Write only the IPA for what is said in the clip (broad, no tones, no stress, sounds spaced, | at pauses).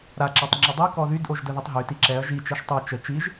ɾ a ǁ a tˤ ŋ͡ǁ ə dˤ i k ɔ ð y d ʔ o ʒ d ə ð i tˤ ɦ y t i ǁ ɛ ɐ̯ ʒ i t͡ʃ ɛ ʃ tˤ o t͡ʃ ə t͡ʃ i ʒ